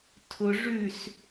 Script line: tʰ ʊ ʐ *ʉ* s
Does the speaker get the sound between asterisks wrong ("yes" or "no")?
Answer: no